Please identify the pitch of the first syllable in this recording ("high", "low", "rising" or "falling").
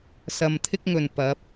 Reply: low